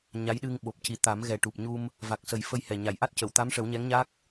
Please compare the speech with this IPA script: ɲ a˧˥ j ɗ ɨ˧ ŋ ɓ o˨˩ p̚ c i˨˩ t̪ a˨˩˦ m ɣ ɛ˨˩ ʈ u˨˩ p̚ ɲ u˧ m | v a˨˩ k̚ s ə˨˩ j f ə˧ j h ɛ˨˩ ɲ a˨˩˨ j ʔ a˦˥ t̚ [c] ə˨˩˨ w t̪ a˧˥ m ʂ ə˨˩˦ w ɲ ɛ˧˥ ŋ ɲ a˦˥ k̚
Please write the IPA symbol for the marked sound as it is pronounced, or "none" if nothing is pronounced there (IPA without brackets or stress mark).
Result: c